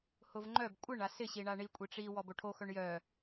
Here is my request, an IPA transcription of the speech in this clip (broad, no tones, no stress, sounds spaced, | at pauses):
h ʊ v ŋ͡ǃ œ b kʷʼ ɪ ɳ a s ɪ ɕ i ɳ a ɳ i kʷʼ i ʈ͡ʂ i w ɔ b o ʈʰ o x œ ɳ j œ